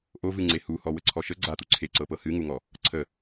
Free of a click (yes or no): no